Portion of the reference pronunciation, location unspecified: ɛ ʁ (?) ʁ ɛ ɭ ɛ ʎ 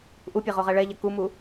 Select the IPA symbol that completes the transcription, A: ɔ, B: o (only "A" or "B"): B